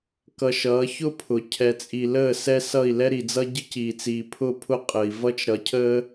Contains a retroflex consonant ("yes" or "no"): no